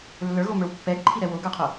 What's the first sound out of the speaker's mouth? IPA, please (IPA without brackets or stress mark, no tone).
lː